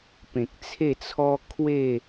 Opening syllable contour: low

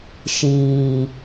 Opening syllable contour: low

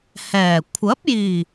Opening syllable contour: low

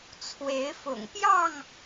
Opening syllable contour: rising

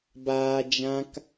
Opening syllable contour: low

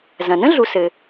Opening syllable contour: low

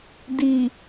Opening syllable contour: low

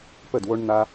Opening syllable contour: falling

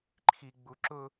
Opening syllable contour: low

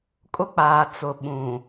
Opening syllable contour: high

